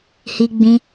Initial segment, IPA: h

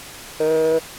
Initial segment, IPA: h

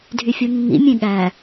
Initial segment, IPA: dʱ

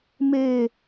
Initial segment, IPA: m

